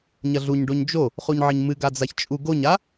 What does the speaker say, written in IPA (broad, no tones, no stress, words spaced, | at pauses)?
ɲɐɮuɲɖoɲ d͡ʒo | χuɲʕɘɲmɨ ɡad͡zaçt͡ʃʼu ɡoɲa